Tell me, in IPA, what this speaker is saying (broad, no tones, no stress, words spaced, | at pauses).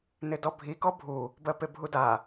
nɪdɔbʱi kɔbʱu | bɜpebʱuda